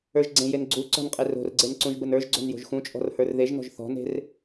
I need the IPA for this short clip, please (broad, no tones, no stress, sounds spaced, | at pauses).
ə˞ ʒ ɡ͡ǀ ẽ j e n ɡ͡ǀ u ǀ ɔ̤ n qʼ e r o̤ r ɡ͡ǀ e n ǀ ũ ʒ b ə n ə˞ ʒ ɡ͡ǀ o̤ n j o̤ ʒ x ũ t͡ʃʼ ɔ̤ r h ə˞ r ð e ʒ n ɔ̤ ʒ θ ɔ̤ n e̤ r